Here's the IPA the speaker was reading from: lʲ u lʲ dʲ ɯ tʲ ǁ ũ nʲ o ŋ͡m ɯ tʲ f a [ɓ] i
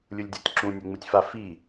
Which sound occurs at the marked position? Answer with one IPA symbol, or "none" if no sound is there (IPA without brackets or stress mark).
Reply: f